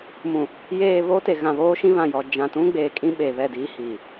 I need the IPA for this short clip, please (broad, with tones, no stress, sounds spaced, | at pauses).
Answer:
m ũ˨ | j eː˨ β oː˦ t e˨ ɣ ã˨ β oː˦ ʃ ĩ˦ β ã˨ j ɔ˨ d͡ʒ ã˨ t ũ˦ ɡ͡b eː˨ kʼ ĩ˦ ɓ e˨ β ɛ˦˨ d iː˦ h iː˨